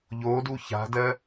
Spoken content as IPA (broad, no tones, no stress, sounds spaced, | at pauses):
ʎ o d u ç a̤ d ɜ